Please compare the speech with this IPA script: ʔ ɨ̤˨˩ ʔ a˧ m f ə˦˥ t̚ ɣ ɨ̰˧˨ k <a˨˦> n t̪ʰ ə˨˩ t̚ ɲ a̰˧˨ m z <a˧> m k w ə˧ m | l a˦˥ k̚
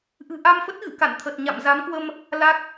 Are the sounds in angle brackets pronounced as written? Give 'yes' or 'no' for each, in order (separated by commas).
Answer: no, no